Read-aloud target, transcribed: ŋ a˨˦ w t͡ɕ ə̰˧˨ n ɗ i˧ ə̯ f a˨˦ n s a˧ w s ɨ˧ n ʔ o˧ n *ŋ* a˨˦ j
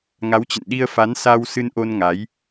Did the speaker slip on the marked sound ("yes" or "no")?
no